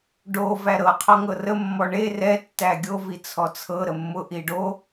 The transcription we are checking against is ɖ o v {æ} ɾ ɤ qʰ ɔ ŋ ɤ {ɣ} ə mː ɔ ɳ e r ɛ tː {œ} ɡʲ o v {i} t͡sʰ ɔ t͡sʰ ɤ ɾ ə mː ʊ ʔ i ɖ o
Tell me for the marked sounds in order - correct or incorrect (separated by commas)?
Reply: correct, incorrect, incorrect, correct